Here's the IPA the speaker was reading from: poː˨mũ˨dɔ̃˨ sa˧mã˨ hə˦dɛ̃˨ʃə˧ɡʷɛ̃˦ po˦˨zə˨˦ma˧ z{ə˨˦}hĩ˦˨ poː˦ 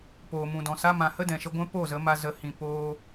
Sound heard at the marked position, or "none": ə˦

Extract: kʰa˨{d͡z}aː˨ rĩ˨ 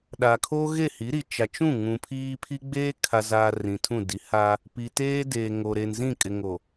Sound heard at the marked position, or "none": z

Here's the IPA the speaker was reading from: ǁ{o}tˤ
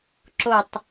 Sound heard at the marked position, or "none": o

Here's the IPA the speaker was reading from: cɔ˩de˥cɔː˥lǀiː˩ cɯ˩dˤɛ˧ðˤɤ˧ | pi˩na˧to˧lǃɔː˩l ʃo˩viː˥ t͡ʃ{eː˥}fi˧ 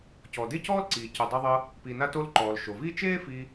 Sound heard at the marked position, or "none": eː˥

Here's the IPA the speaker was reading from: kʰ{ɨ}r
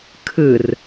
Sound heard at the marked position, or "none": ɨ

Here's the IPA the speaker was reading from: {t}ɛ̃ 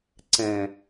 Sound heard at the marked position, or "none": ǀ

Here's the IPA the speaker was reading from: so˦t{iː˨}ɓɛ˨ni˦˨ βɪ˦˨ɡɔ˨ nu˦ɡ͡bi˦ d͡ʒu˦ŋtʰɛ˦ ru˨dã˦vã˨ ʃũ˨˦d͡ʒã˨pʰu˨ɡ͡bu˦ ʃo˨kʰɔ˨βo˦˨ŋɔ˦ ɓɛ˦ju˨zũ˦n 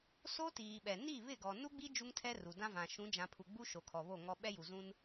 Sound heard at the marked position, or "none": iː˨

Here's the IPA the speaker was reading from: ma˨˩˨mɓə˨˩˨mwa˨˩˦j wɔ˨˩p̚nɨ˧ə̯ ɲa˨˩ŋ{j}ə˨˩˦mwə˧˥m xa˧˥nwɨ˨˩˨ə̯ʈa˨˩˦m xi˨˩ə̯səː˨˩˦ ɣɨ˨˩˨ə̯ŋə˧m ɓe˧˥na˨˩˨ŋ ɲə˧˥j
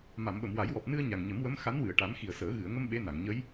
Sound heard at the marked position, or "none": ɲ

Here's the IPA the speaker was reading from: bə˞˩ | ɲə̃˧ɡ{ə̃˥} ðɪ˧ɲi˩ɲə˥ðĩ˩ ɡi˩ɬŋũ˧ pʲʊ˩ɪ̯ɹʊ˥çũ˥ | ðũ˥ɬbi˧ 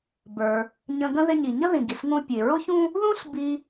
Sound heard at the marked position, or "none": ə̃˥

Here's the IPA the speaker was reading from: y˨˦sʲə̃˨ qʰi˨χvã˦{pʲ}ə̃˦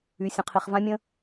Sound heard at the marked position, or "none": mʲ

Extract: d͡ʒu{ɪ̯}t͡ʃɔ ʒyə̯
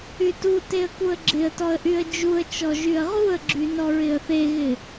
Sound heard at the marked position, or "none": ə̯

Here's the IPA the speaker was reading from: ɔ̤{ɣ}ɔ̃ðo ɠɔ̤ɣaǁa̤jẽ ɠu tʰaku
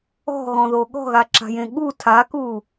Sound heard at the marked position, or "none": ɣ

